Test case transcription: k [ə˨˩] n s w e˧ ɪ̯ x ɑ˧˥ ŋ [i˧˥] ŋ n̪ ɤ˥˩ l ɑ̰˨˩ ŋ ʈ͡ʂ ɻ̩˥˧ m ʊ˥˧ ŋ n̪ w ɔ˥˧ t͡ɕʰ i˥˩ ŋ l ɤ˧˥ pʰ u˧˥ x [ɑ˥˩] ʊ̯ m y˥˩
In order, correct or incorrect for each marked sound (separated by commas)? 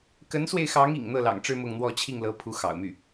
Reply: incorrect, incorrect, incorrect